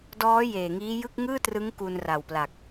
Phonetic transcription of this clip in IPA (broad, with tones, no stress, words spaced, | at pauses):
dɔː˦˥ jeː˨˩ŋiː˦˥jɯ˥˩k̚ ŋɯː˥˩trɯ˦˥ŋ ku˧nra˨˩wpla˨˩k̚